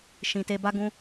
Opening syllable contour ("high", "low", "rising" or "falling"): low